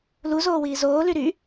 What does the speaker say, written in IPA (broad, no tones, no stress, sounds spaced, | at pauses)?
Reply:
l u z oː w iː z oː l y ɾ y